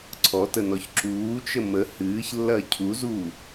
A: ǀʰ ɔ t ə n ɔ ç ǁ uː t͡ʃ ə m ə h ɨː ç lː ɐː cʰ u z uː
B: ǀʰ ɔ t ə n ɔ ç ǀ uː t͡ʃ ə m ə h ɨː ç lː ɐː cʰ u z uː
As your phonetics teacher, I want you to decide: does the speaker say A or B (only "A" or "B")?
A